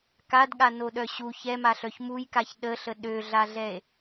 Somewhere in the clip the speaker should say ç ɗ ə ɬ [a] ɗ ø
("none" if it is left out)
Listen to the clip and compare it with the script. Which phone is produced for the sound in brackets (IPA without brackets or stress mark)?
ə